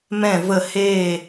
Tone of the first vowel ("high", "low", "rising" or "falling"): falling